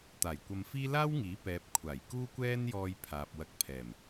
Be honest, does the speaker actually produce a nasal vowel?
no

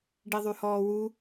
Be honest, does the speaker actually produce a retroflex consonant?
yes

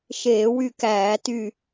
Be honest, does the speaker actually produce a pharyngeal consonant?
no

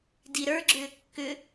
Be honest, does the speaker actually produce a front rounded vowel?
yes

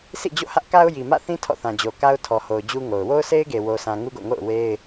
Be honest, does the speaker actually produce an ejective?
no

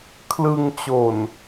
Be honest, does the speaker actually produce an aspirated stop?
yes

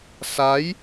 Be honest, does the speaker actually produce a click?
no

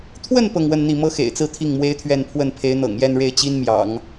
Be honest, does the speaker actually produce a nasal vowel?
no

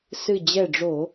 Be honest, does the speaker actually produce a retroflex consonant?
yes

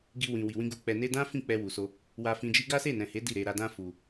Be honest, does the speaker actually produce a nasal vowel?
yes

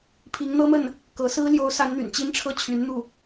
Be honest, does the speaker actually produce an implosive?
no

